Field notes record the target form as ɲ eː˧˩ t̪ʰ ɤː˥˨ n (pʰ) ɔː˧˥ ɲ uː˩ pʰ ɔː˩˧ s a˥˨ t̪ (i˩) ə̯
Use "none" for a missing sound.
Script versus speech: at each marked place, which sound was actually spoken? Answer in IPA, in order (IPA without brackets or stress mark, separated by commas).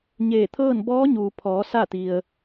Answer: b, i˩